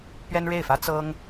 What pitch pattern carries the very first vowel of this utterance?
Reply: high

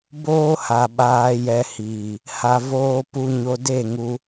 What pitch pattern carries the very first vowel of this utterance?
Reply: high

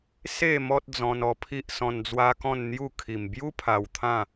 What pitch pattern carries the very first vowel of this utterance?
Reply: falling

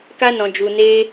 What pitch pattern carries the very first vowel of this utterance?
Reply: high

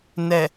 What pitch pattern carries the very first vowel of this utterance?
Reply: low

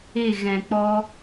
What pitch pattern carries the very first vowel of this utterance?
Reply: falling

